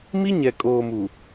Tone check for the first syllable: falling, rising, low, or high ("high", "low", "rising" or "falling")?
high